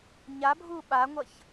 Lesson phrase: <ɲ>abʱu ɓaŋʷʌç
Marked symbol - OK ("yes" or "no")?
yes